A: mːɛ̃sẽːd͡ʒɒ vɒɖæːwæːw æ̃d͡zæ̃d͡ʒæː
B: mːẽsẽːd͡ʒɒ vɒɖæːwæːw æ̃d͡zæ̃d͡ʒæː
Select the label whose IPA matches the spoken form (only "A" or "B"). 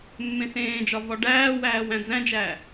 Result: B